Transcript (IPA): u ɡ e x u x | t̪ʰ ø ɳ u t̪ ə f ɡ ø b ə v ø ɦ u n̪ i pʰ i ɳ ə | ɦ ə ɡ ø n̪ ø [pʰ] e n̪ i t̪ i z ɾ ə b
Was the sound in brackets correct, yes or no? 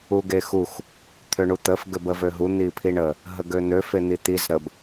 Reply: no